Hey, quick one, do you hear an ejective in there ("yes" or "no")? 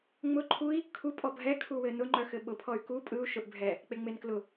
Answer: yes